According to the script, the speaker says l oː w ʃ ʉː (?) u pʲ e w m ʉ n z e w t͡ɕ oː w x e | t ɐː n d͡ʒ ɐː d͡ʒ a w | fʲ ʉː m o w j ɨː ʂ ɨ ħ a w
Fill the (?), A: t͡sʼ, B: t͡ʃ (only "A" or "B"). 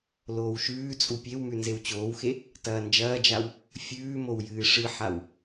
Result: A